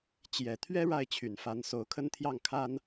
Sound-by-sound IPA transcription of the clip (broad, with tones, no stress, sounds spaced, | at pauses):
t͡ɕ j ɛ˨˩ t̪ʰ ɥ ɛ˥ ɻ a˥˩ ɪ̯ t͡ɕʰ y˨˩ n f a˧˥ n s o˧˥ ʊ̯ kʰ ə˥ n t̪ʰ j ɑ˥˩ ŋ kʰ a˥ n